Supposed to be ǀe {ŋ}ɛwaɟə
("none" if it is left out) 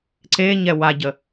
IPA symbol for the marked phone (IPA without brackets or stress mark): ɲ